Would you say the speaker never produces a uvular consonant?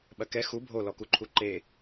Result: yes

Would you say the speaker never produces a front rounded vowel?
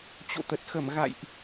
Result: yes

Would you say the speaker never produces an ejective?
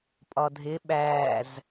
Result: no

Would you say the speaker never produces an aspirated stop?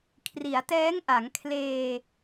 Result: no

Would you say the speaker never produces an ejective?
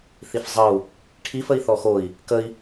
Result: yes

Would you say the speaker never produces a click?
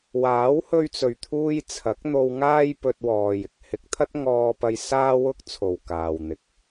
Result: yes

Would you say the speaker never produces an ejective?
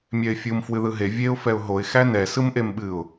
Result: yes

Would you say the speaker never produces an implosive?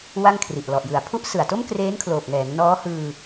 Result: yes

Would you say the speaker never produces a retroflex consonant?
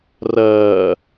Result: yes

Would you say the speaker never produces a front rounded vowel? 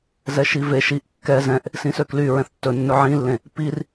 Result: no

